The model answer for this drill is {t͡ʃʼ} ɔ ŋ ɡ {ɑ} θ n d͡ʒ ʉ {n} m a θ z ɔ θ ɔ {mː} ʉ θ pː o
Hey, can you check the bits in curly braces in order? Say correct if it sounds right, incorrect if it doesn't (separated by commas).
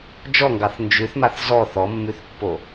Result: incorrect, correct, incorrect, correct